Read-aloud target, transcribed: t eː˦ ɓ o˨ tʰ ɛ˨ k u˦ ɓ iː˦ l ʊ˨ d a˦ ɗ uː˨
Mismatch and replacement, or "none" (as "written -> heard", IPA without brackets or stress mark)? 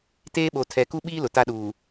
d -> t